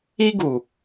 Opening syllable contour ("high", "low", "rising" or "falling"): high